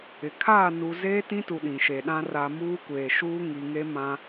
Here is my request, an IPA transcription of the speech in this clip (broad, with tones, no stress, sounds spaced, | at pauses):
ɪ˨ kʰ aː˦˨ n u˨ z eː˦ t ĩ˦ t u˨ ɗ ĩ˨ ʃ e˨ ɗ ã˦ r a˨ m uː˦ kʷ eː˨ ʃ uː˦ ŋ i˨ ŋ e˦ m ã˦